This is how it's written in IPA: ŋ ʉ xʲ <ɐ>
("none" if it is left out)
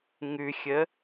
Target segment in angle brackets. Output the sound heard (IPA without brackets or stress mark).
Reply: ə